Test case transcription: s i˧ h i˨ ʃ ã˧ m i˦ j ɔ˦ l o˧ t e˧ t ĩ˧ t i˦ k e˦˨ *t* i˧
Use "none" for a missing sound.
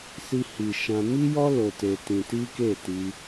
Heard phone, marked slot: t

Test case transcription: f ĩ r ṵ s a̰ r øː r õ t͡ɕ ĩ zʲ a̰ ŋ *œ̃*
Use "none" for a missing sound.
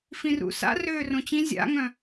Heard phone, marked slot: œ̃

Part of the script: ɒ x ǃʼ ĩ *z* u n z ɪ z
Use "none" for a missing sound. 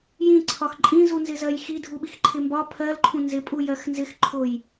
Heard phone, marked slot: z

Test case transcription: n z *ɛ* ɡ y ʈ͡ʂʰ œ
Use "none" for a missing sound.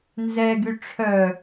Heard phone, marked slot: ɛ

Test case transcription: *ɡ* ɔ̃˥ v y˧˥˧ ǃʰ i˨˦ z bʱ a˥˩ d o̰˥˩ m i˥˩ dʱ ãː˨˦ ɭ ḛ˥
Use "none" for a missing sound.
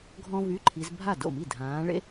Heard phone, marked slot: ɡʱ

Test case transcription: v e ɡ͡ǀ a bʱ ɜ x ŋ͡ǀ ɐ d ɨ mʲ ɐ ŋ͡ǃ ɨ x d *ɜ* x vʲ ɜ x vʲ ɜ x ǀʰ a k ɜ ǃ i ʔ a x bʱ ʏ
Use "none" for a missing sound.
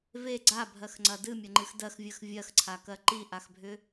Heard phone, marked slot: ɜ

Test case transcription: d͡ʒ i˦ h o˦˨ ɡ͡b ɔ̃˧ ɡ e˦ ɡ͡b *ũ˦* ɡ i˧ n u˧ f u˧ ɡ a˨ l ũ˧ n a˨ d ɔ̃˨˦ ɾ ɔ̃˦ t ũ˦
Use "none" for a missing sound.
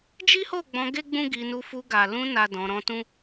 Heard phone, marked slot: ũ˦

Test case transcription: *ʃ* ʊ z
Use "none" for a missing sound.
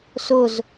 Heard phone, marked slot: s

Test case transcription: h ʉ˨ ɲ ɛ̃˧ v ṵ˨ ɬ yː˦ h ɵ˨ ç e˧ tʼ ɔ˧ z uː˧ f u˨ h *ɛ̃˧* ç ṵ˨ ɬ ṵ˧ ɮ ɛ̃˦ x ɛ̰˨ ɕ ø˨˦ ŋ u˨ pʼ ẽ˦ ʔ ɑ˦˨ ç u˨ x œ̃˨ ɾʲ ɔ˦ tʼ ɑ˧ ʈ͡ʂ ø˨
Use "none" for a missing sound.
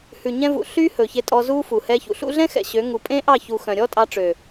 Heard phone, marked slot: ɛ˧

